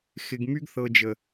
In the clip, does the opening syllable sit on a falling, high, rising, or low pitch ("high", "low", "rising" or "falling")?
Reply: low